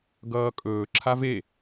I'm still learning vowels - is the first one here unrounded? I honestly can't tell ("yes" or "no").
yes